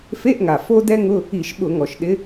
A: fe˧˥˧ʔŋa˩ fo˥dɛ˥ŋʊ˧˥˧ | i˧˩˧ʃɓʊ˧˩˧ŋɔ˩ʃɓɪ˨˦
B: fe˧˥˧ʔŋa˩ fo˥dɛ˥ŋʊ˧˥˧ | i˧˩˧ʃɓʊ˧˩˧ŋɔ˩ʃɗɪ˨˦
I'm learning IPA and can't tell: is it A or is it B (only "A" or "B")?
B